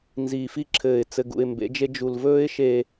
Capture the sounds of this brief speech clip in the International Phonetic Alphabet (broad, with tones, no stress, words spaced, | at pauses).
nziː˨fi˦ǁʰɘː˨ɪ̯ t͡sɘ˨ɡṵ˨ɪ̯mbḛ˨˦d͡ʒe˦ d͡ʒu˨lvɵː˦ɪ̯ʃe˨